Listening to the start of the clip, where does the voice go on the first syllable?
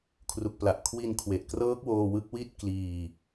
low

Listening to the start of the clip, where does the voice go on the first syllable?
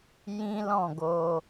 high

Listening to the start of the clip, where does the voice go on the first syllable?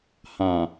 low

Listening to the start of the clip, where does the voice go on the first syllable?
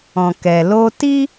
low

